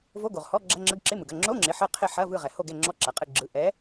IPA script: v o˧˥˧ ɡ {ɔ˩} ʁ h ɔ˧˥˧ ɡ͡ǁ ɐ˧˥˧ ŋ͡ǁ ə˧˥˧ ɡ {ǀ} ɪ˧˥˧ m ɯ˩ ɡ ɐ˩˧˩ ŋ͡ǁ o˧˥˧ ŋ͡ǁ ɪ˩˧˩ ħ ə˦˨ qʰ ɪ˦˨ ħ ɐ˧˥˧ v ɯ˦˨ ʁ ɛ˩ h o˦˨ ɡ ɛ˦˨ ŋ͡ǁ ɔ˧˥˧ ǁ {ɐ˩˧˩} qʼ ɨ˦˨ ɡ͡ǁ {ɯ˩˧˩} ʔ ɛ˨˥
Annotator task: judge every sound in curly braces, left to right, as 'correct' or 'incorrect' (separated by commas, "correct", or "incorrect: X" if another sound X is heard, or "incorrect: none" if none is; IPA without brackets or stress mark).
incorrect: o˩, incorrect: ǁ, incorrect: ɐ˩, correct